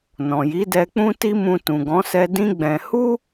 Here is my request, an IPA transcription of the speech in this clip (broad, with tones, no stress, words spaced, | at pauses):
nɔ̃˨ji˨˦dɛ˧ k͡pũ˦ti˦mũ˧ tũ˨ɡɔ̃˨˦sɛ˧dĩ˦ ɡ͡bɛ̃˧ hu˦